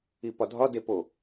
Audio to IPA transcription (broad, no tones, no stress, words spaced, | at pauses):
ipɒdʱɒ depo